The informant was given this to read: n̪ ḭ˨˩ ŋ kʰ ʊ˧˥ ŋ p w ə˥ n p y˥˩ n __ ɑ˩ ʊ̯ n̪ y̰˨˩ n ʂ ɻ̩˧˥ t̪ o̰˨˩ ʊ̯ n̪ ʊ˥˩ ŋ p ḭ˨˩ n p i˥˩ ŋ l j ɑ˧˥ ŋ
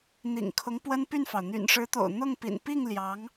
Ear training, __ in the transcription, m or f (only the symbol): f